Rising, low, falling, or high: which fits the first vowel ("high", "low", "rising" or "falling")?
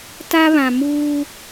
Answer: high